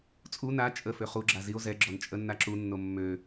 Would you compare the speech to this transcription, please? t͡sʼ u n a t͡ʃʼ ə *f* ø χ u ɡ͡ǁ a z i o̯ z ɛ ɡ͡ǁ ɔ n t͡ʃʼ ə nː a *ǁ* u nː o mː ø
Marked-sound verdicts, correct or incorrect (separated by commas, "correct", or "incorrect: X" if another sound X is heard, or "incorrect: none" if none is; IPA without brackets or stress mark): correct, correct